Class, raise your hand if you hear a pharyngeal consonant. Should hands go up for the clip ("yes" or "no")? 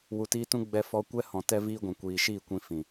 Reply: no